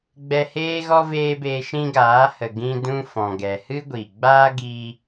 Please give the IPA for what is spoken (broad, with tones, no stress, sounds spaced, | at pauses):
ɡ͡b ɛ˧ h eː˦ ɣ ɔ˦ v eː˦ b eː˧ ʃ ĩ˦ ɡ aː˨˦ h ə˨ ɡ ĩ˧ d ũ˧ f ɔ̃˨ ɡ ɛ˨ h ɨ˦ ɡʷ i˨ ɡ͡b aː˦ ɡ iː˧